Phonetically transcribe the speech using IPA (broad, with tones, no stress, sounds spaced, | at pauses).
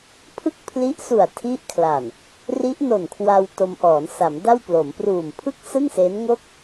pʰ ɯ˥˩ k̚ pʰ l i˦˥ ʔ s u˨˩ a̯ tʰ i˦˥ ʔ kʰ l a˨˩ n | r i˦˥ ʔ n o˨˩ n kʰ w a˧ w t o˧ m ʔ ɔː˩˦ n s a˩˦ m d a˥˩ w p l o˩˦ m p r uː˨˩ m pʰ ɯ˥˩ k̚ s ɯ˥˩ ŋ s e˦˥ n ŋ o˥˩ k̚